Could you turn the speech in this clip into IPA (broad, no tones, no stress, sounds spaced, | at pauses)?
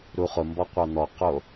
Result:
ɾ u χ ʊ m b ɔ qʷ a n̪ ɔ q o